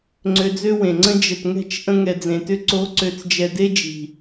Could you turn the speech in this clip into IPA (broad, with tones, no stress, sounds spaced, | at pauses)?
ŋ͡ǀ ø˧ d͡z ø˦ w ẽ˨ ŋ͡ǀ ə̃˦ d͡ʒ ə˨ t ŋ ɛ̤˦˨ t͡ʃ ʔ ə̃˧ ŋ ɛ˨ d͡z ẽ˨ t ʏ˧ ǀ o˨˦ ǀ ø˨ t͡s d͡ʒ ɛ˨ d e˦ d͡ʒ i̤˨